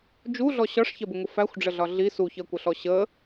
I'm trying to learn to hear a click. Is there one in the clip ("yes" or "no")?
no